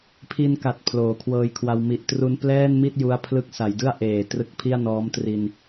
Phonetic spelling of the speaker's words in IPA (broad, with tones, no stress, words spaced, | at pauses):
pʰi˧nka˨˩t̚ pʰloː˩˦kʰwɤː˧jkʰwa˧w mi˨˩ʔtru˧n plɛː˥˩nmi˥˩t̚ ju˦˥a̯pʰlɯ˦˥k̚ sa˩˦jdɯ˥˩a̯ʔeː˨˩ trɯ˦˥k̚pʰi˥˩a̯nɔː˦˥m tri˧n